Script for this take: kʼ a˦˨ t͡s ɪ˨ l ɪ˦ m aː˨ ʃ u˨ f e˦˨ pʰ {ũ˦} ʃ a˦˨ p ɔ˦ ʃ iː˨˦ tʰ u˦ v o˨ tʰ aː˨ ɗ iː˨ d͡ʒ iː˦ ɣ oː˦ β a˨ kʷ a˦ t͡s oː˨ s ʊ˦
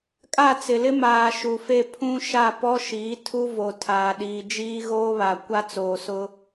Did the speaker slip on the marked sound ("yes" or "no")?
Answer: no